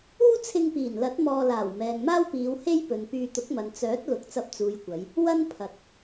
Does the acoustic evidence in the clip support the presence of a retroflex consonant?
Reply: no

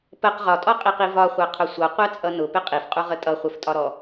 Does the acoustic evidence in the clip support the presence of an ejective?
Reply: yes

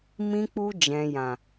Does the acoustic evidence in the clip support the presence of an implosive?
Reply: no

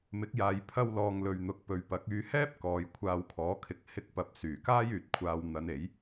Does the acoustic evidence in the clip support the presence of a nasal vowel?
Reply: no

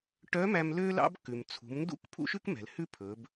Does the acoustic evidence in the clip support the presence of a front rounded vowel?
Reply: yes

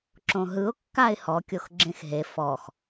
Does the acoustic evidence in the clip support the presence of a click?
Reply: yes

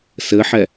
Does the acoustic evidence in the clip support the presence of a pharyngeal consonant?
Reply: yes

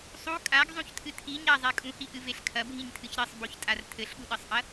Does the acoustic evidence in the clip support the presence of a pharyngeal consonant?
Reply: no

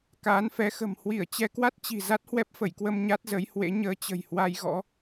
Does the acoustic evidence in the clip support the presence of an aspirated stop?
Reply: no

